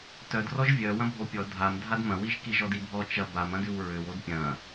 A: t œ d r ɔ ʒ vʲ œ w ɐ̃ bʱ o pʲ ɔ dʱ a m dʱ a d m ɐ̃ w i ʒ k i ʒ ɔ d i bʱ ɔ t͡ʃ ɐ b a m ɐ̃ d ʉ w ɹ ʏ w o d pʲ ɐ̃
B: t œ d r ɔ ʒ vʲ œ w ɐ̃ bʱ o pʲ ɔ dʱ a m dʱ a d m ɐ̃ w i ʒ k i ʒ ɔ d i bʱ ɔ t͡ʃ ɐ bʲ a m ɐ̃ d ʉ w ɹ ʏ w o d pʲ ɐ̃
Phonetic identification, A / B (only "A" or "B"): A